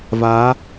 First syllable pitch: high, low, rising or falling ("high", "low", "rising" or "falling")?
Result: rising